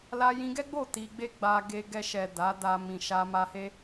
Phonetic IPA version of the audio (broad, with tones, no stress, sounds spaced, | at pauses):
l a˧ j ĩ˧ ɡ ɛ˦ ɡ͡b o˦˨ t i˧ ɡ͡b e˦ ɡ͡b a˧ ɡ e˧ ɡ ɛ˧ ʃ ɛ˨ d a˨˦ d a˧ m ĩ˨ ʃ a˧ m a˧ h e˦